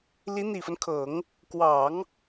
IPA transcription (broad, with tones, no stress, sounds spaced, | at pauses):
l i˧˥ n̪ i˨˩ f ə˦ n kʰ ɤ˨˩˦ ŋ | k w ɑ˨˩˦ ŋ